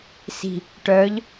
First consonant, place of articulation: alveolar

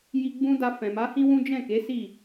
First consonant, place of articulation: palatal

